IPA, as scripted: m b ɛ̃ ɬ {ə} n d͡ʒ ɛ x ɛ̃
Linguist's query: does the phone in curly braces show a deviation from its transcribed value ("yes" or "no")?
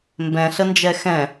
no